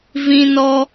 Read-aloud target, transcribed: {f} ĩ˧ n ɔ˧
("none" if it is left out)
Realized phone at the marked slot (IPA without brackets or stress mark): v